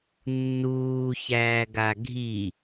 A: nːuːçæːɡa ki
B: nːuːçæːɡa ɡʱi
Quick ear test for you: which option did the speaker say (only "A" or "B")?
B